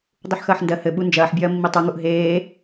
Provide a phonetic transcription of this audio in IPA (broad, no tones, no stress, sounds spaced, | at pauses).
dˤ u ħ x ɐː ħ n d ɜ h ɘ ɓ u n d͡ʒ ɐː ħ bʲ ɐː mː i tˤ u ŋ u ʔ ɦ eː